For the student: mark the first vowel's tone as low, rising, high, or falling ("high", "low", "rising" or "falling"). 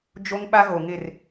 high